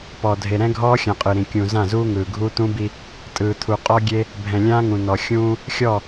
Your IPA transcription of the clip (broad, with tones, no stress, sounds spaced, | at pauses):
p ɔ˨ dʱ e˨ ɾ ɛ̃˦ ɡʱ ɔː˦ xʲ ã˨ qʼ ɯ˨ ɾ ĩ˨ kʲ ũ˨ z ã˦˨ z uː˦ ŋ ɯː˨ ɡʱ uː˦ t̪ ũ˦ b i˦ | tʼ ɯː˨ t̪ʰ u˨ qʼ ɔ˦ ɡʲ e˦ | bʱ ɛ̃˨ lʲ ãː˦ ŋ ũ˨ n ɔ˨ xʲ ũː˦ | xʲ ɔ˦˨